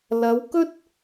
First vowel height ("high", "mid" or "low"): low